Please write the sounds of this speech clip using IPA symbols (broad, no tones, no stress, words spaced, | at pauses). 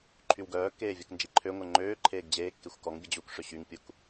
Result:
ǃʰywɡœːkːeː vʲəknd͡ʒiǃʰøŋʷɛ ŋ͡ǃøːǃʰeːɡ d͡ʑeːkːexʷ kɔŋbʲə d͡ʑukʂø ɕyŋpʲuk